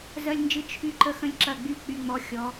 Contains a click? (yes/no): yes